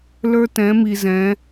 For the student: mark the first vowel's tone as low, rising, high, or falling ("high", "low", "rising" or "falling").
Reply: high